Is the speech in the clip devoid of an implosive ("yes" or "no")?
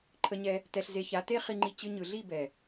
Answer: yes